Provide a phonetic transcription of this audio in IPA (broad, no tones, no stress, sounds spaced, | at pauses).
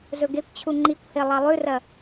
z ɵ ɡ e kʷ t͡ɕʰ u ŋ͡ǃ i kʷ h e lˠ ɐ lˠ ʉ r ɐ